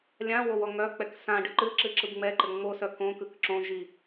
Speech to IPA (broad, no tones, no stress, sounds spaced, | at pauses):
lʲ ã w o w ɔ ŋ œ k͡p ɛ k s ã ɖ ɨ ǃ ɨ ǁ ɨ ǁ ɯ b ŋ͡m ɛ ǃ ɘ ŋ͡m o s œ k õ k ɯ k ǁ õ ʒ i